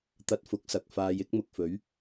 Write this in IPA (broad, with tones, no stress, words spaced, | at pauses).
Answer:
t̪ɐ˧t̚fʊ˨˥k̚ sɐ˨k̚faː˨˧j ɪ˨˥k̚mʊ˨k̚fɵ˨˥ɥ